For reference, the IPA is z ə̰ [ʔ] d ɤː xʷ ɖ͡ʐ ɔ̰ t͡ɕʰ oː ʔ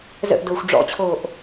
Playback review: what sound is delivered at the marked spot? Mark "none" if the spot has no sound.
ʔ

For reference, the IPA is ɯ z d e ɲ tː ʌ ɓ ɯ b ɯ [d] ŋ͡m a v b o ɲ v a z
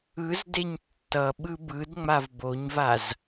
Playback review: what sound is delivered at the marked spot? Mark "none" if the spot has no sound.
d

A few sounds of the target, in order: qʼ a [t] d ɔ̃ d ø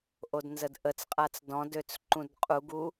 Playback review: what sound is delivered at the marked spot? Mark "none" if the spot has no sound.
t͡s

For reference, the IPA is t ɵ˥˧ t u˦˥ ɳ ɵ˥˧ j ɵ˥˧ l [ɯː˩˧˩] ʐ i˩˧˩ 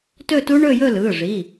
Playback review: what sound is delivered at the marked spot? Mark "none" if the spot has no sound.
ɯː˩˧˩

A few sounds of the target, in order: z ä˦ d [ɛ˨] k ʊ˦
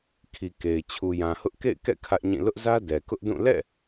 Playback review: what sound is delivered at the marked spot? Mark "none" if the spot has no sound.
ɛ˨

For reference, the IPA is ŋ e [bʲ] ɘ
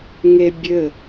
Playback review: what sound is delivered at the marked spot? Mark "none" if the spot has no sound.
bʲ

